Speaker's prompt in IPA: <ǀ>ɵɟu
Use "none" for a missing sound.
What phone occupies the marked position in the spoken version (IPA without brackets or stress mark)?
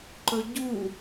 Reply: ǃ